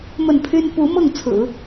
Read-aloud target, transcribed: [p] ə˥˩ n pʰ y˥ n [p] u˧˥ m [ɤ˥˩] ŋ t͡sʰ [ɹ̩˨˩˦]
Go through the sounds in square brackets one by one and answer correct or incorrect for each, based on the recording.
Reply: incorrect, correct, correct, correct

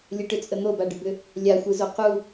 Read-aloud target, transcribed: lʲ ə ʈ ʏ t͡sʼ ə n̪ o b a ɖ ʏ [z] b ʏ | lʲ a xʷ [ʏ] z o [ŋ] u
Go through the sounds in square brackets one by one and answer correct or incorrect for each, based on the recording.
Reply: incorrect, incorrect, incorrect

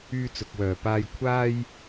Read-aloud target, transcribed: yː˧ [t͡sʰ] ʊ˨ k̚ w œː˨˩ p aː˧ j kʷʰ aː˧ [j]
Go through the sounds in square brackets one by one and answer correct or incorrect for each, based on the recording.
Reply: incorrect, correct

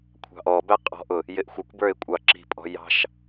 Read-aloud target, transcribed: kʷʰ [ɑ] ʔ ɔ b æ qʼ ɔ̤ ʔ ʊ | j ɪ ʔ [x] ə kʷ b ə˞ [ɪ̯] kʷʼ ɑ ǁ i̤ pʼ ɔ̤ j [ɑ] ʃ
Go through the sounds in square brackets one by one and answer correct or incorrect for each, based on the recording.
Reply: incorrect, incorrect, correct, incorrect

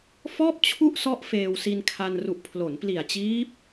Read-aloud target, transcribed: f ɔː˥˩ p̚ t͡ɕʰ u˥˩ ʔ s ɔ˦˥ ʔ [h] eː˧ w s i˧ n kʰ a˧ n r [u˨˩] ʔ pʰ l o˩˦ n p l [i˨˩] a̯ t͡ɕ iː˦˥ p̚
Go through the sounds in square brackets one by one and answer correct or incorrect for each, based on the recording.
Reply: incorrect, correct, correct

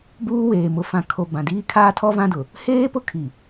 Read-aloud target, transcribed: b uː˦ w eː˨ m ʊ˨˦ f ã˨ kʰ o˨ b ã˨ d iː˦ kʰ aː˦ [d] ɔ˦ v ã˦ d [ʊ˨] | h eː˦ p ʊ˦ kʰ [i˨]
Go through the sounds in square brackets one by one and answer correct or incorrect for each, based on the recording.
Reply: incorrect, correct, correct

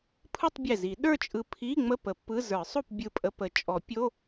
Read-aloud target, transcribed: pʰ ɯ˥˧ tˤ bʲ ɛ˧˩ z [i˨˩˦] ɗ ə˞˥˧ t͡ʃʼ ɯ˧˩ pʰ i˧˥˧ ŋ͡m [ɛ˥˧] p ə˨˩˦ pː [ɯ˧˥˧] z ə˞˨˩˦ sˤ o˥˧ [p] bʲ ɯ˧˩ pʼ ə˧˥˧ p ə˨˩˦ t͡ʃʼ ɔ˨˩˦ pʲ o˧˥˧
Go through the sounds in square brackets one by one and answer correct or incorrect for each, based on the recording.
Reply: correct, incorrect, correct, correct

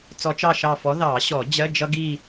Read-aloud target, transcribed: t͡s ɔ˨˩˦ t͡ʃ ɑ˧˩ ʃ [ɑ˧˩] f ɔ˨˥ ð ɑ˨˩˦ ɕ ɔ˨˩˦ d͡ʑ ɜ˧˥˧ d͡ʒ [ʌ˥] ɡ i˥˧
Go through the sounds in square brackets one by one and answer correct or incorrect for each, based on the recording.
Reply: correct, correct

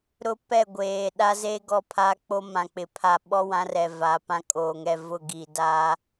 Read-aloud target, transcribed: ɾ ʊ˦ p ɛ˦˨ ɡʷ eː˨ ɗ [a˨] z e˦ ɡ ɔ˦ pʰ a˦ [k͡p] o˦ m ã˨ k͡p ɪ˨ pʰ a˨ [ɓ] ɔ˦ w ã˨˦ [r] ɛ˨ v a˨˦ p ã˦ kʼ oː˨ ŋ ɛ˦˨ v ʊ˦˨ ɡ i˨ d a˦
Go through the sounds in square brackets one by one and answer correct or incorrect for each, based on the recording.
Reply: incorrect, correct, correct, correct

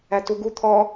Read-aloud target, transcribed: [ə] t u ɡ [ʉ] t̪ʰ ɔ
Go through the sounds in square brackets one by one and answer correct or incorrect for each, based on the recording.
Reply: incorrect, incorrect

